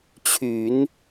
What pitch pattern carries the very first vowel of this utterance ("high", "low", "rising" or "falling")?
low